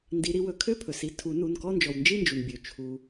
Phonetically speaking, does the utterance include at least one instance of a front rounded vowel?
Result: yes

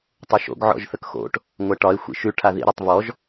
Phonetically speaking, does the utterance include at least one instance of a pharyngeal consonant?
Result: yes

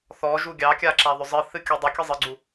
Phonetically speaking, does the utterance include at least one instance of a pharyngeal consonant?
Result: no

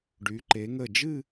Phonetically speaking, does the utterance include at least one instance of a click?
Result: yes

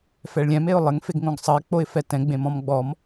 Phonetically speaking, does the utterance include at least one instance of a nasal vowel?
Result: yes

